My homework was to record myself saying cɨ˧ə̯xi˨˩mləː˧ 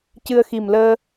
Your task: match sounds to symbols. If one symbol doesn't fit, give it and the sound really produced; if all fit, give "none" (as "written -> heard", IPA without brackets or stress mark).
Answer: none